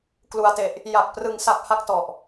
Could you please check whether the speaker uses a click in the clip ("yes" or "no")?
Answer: no